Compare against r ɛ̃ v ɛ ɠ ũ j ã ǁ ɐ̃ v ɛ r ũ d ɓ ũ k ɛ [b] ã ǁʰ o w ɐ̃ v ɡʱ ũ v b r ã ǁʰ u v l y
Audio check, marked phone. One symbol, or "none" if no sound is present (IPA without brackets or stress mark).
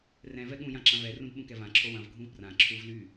v